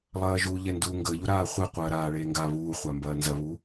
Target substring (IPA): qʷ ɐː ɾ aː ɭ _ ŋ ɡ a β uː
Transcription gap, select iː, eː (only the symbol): eː